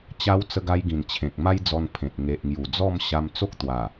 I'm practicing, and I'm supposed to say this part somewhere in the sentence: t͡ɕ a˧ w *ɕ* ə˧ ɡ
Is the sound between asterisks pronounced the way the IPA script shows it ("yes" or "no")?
no